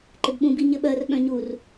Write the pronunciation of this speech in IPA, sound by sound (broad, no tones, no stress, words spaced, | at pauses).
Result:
ǃɪbɓũ biɲɘɓɜr ɓœ̃ɲur